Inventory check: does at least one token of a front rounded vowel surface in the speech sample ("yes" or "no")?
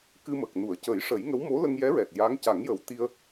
no